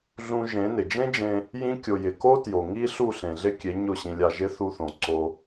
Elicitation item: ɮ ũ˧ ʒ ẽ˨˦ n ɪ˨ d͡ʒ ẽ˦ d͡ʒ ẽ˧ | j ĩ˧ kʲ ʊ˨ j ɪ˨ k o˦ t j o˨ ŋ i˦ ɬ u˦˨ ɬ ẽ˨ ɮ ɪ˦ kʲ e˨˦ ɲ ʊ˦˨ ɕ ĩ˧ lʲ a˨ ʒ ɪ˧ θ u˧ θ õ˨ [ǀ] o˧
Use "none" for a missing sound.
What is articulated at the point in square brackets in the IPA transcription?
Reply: ǀ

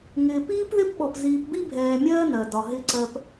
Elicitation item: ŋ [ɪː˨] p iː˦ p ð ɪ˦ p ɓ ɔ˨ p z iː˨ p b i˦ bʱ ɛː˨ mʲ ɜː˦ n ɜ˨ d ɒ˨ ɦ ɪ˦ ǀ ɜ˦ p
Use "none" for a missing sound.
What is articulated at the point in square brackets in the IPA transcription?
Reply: ɪː˨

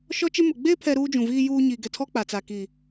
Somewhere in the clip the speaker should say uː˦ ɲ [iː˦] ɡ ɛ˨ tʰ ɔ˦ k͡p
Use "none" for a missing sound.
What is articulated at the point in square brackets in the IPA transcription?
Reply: iː˨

